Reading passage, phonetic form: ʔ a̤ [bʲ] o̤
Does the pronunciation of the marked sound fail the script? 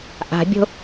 no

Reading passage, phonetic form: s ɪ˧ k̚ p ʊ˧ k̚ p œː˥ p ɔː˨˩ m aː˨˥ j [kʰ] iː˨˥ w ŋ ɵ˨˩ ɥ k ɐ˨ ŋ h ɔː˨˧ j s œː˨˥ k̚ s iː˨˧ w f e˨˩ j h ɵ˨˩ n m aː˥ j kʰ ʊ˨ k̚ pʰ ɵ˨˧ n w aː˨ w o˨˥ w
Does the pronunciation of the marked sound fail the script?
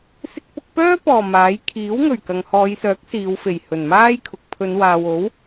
no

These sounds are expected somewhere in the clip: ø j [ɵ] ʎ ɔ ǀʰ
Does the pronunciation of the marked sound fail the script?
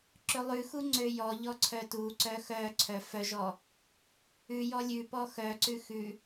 yes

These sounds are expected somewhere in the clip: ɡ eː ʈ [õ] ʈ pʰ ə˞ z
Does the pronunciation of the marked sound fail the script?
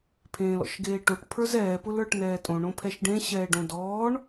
yes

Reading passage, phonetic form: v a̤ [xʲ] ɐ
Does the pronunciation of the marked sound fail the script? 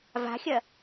no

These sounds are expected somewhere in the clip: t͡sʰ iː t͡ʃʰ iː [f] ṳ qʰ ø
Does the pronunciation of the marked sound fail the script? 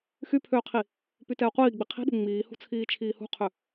yes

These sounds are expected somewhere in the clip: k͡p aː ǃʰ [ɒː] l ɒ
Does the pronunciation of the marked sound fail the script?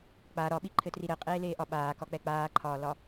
no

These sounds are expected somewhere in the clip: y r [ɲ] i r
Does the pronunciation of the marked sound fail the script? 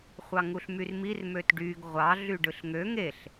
yes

